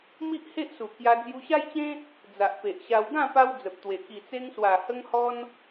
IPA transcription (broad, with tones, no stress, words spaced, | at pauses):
mi˦ʔhe˦ʔsu˨˩ kja˧ d͡zju˧ɕa˦jt͡ɕẽ˦ | d͡za˨ʔpe˨ʔɕa˧w ɡã˥˧pa˧w d͡zə˨p̚t̪we˨˩ ki˨˩t͡se˧ŋswa˨˩ hə˧ŋhɔ˧n